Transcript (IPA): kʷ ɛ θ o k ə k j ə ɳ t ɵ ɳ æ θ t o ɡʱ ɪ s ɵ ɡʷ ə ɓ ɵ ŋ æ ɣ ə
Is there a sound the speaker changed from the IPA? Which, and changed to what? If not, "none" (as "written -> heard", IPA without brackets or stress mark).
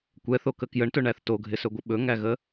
none